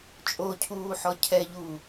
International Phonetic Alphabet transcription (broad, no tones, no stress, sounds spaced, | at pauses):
t͡ʃʼ o cʰ uː ħ ɔ cʰ ɛ ʎ uː